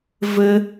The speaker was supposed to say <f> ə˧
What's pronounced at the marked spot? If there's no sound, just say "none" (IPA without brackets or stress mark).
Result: v